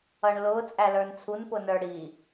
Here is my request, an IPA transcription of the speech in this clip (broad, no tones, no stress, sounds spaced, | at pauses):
ʌ ɳ l ʊ t͡sʼ æ l ə˞ n t͡sʰ u n p ʊ n ə˞ ɽ i